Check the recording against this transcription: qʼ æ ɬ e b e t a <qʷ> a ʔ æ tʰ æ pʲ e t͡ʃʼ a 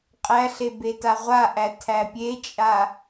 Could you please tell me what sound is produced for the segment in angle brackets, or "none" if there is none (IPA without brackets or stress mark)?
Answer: ʁʷ